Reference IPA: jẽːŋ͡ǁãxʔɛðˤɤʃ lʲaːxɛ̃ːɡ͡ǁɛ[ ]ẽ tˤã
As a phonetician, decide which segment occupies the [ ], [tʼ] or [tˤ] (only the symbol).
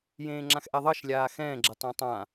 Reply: tˤ